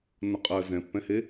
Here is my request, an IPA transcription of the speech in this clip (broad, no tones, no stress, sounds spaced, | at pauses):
n ʊ qʼ ɜ z ɛ̃ pː ɛ̃ h e